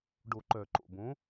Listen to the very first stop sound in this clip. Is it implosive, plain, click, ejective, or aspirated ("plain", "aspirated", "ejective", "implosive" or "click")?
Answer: plain